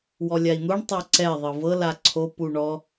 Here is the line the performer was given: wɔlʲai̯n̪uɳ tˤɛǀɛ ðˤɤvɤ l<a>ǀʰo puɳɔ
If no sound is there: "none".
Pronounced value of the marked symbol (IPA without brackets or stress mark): a